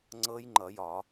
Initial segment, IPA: ŋ͡ǀ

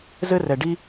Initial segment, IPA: z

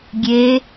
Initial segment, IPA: ɡʲ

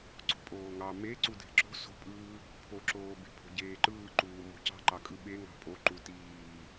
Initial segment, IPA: ǀ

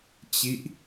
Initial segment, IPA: t͡ɕ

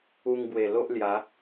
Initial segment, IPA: u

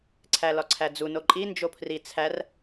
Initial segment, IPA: ǀʰ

